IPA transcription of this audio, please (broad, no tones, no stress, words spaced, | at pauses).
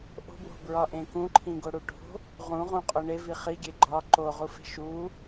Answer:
ʔo̤bwo̤bɹɒʔẽ kũǃʰĩɡoɽu ʈo̤ | ʁũʁõqʼo ɳevi χiɡʲe ɡ͡ǃɒ ǃoʁufe̤ ʃu